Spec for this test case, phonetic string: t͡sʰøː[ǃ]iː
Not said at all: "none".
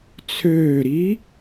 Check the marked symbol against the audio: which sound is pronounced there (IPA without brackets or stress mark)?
ɾ